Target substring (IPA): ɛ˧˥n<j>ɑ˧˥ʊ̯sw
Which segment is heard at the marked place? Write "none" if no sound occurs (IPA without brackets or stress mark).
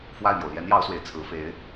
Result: j